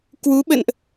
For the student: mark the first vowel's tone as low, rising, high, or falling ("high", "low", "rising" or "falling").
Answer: rising